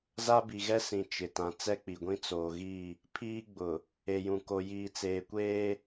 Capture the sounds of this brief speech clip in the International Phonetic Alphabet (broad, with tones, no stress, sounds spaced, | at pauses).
z a˦ b i˨ ɣ ɛ˦ s ĩ˨ t͡ʃ ɪ˨ t ã˨ t͡s ɛ˦ k͡p i˨ ɡʷ ĩ˦ t͡s oː˨ ɣ i˦˨ | pʰ iː˦ ɡ͡b ʊ˨ | e˨ j ũ˨ k o˨ j iː˨ t͡s eː˨ kʷ eː˦